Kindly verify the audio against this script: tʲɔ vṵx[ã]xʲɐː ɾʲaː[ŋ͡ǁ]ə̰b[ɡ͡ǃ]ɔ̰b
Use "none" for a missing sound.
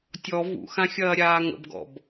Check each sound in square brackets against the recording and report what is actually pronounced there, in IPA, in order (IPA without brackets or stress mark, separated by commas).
ã, ŋ, ɡ